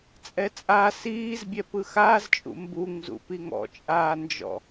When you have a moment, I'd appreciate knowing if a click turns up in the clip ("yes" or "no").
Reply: no